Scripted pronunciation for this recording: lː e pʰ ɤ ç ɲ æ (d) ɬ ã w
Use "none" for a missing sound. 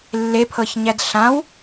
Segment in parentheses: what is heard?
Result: d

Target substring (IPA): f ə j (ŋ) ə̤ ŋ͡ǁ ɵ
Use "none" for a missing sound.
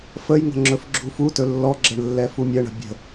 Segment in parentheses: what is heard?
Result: ŋ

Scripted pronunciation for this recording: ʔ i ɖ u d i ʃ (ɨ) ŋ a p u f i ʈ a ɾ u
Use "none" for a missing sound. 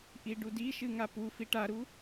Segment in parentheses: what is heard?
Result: ɨ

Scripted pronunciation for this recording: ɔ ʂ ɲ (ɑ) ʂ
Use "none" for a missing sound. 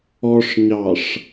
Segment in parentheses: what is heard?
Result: ɑ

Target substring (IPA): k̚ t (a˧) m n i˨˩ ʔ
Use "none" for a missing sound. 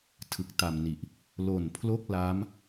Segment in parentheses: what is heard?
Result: a˨˩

